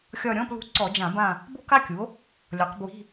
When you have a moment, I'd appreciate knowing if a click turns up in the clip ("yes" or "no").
yes